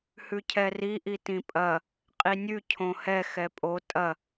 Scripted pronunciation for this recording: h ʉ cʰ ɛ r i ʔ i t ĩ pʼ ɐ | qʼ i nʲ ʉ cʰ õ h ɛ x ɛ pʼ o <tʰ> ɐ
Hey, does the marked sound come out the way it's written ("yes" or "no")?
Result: no